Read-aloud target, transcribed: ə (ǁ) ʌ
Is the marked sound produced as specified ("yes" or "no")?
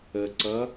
no